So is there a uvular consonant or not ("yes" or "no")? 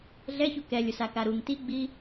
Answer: no